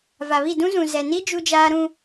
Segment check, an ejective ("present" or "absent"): absent